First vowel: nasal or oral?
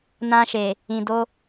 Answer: nasal